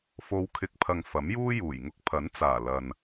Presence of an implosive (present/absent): absent